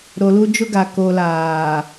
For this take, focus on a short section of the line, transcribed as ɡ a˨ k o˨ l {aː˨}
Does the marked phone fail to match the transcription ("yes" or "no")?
no